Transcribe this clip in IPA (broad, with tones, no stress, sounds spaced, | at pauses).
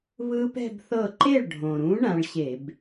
β ɯ˦˥ p ɛ̤˥˧ b θ ɤ˥˩ ǃ e˥˩ ɭ ɖʱ õ˩ ɾ ũ˨˦ ɳ ã˨˦ ɭ ɕ e˧˩˧ b